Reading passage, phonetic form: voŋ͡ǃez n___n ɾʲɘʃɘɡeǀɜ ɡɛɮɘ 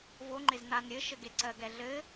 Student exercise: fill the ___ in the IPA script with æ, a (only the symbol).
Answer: a